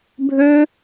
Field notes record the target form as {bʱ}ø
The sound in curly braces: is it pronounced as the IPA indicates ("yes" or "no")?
yes